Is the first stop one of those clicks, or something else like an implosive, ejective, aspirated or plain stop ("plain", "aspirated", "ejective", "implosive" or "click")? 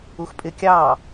ejective